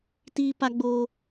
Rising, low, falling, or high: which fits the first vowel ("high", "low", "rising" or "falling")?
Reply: high